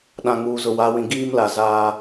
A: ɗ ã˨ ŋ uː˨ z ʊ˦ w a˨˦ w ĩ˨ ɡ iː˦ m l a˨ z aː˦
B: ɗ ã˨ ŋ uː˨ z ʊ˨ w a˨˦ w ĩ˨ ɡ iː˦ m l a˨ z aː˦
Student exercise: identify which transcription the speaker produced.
B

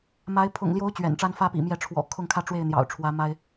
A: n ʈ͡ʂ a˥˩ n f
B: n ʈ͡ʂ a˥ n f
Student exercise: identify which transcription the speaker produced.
B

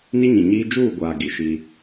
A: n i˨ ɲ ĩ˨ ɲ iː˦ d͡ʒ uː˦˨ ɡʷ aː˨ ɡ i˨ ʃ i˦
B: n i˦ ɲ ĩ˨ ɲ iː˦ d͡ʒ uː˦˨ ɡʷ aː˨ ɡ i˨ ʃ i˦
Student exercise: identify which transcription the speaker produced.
B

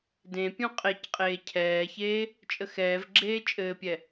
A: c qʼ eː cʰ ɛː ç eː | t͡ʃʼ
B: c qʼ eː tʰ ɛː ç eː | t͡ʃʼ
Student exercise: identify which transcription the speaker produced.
A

